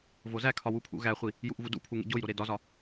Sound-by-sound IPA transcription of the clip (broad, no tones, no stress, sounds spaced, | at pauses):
v o z æ kʰ ɒ w u pʰ ṵ ɣ æ χʷ i | j u ʔ v u d ṵ pʰ u ŋ ḛ ɟ o j ɾ o ɾ e d ɒ z ɒ